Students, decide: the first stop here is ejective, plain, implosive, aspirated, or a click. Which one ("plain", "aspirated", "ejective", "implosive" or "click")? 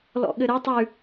implosive